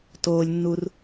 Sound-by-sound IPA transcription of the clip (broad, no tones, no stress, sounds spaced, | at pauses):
t oː lʲ nː u r